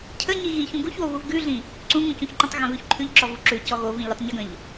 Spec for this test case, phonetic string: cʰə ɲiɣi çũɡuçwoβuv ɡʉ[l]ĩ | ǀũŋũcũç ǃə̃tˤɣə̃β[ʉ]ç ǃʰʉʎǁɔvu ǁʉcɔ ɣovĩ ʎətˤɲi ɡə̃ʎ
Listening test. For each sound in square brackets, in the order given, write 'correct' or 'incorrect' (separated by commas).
incorrect, correct